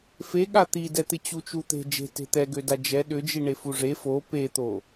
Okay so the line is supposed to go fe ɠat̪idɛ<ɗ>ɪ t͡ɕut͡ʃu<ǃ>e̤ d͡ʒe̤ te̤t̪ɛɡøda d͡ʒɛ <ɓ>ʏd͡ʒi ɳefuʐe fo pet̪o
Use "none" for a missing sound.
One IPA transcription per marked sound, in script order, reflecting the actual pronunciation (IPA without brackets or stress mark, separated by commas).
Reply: t̪, t̪, ɗ